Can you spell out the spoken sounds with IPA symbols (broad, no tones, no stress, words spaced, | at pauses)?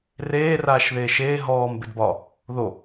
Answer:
reː raːʃðeːʃeː ɦɔːm bedbɒ | ðo